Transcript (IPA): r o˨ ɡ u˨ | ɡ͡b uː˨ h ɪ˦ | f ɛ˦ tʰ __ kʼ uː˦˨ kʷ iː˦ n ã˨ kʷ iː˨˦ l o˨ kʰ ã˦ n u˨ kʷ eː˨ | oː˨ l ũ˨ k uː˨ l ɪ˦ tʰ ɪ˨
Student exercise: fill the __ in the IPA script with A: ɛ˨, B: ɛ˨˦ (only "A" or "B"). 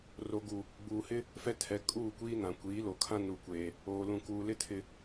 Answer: B